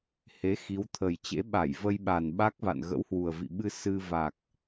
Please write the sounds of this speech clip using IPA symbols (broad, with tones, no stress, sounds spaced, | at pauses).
h e˨˦ x i˨˦ w t̪ʰ ə˨˩ j t͡ɕ ḛ˧˥ ɓ a˧˩ j v ə˧ j ɓ a˨˩ n ɓ a˦˥ k̚ v a̰˧˨ n ɣ ə̰˧˥ w h w u˨˩ ə̯ v ḭ˧˨ ɓ ɨ˧ s ɨ˧ v a˨˩ k̚